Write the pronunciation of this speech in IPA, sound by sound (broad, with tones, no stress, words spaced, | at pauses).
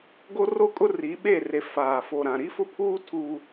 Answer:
ɡo˦ro˦kʼʊ˦ ri˨˦ɓe˦˨re˨ faː˨ fo˨ɾã˨ ɾi˦fʊ˦pʰuː˦ tʰuː˦